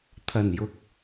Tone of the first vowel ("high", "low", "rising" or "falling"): low